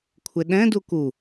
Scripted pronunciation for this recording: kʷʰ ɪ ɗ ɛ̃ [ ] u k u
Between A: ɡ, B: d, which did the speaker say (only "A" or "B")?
B